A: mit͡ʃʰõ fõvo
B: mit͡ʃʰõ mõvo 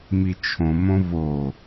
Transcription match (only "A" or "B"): B